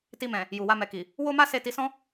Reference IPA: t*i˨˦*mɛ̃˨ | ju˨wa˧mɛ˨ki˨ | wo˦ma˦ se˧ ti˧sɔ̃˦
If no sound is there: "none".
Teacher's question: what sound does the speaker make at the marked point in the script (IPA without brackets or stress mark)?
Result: i˧